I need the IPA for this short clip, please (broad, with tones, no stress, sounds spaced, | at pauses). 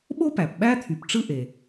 ɓ o˥ p æ˩ p ɓ æ˥ t̪ʰ y˩ p ʈ͡ʂ ɯ˥ ʔ e˩